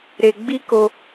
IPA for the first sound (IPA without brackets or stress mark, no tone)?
ɾ